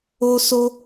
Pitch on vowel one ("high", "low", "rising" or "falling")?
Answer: high